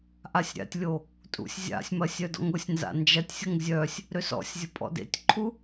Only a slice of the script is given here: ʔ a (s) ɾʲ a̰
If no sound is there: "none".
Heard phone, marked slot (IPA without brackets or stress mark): sʲ